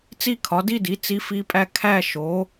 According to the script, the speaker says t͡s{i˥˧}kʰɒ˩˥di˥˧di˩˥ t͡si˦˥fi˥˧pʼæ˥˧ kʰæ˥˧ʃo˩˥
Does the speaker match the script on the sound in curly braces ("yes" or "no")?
yes